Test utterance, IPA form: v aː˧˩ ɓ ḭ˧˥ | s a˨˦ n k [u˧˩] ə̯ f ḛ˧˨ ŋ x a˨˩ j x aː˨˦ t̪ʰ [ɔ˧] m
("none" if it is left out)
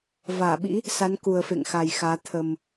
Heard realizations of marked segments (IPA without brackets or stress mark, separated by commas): u˨˩, ə˧